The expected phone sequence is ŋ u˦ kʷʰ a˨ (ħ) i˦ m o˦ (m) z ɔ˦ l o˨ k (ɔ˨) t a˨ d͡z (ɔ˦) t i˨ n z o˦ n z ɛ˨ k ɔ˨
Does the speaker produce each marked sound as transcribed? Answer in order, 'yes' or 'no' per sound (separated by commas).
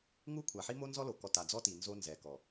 yes, no, yes, yes